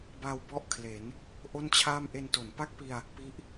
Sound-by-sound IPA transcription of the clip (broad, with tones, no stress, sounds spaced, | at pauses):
b a˧ w b ɔ˥˩ ʔ kʰ l e˩˦ n | ʔ o˥˩ n t͡ɕʰ aː˥˩ m ʔ e˧ n t o˩˦ n p a˥˩ k̚ p i˧ a̯ | p i˦˥ ʔ